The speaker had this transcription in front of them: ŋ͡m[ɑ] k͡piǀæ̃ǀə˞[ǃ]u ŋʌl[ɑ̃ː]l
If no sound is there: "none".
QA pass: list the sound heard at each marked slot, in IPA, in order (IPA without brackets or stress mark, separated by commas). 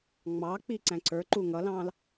ɑ, ǃ, ɑ̃ː